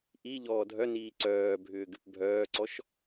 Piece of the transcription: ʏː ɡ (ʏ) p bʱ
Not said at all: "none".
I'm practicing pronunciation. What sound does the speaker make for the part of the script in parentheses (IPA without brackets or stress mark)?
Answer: ʏ